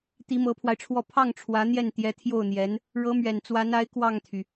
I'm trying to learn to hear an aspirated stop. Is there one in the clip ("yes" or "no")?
yes